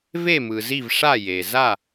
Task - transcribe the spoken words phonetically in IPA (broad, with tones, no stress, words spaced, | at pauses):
ve˥˧mɯ˨zi˥˧v ʂa˥˧je˨ za˥˧